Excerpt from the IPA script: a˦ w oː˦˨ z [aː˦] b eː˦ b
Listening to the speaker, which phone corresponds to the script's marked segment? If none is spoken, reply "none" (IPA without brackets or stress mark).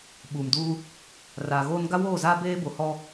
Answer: aː˦